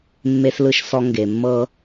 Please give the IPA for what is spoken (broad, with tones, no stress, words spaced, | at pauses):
mːe˧slɯ˧ʃ sɔ˧ ŋɡe˨mːɤ˧